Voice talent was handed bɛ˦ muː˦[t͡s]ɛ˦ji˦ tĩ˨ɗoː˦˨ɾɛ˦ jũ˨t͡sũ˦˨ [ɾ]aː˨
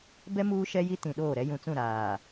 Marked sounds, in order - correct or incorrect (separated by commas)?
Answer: incorrect, correct